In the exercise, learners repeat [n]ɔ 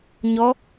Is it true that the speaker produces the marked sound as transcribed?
no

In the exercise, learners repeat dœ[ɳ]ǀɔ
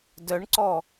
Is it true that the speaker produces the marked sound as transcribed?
yes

